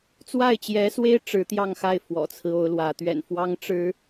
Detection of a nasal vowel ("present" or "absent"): absent